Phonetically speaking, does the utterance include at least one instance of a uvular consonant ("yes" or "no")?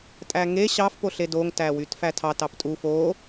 no